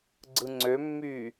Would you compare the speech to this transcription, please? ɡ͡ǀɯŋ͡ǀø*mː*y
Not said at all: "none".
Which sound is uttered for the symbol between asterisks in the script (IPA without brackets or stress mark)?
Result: mː